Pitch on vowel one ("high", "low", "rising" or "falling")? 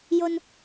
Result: low